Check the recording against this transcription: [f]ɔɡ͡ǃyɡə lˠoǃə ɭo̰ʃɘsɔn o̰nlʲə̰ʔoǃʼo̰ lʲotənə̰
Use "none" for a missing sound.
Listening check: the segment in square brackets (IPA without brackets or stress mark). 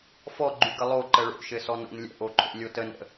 f